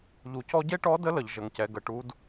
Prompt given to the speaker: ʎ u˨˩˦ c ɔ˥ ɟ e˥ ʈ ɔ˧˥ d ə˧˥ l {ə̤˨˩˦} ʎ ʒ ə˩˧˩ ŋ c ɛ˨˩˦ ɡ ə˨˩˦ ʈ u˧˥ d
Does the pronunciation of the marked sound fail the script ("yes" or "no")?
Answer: yes